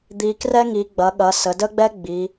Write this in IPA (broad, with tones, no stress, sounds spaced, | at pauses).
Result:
d̪ i˩˧ k r ɛ˥ ŋ i˩˧ ɡ͡b ɐ˩˧ ɠ ɐ˩˧ s ə˩˧ d ə˥ ɡ͡b ɛ˥ ɡ͡b i˩˧